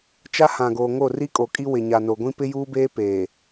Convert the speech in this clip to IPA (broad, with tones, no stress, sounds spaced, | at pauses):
t͡ʃ a˦ h ã˨ ɡ oː˨ ŋ o˦˨ r i˦ kʼ o˨ kʼ i˦ w ɪ˨ ɲ a˨ n o˨ ɡʷ ĩ˦ p ɪ˦ j uː˦ b eː˦ p eː˨